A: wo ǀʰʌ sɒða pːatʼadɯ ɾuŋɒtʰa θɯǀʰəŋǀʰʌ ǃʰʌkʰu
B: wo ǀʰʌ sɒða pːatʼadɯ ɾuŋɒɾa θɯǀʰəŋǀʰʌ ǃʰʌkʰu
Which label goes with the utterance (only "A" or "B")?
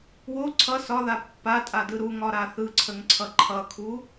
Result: B